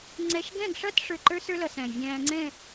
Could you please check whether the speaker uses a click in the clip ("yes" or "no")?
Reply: yes